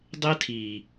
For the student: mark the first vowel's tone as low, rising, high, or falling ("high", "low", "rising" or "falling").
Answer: high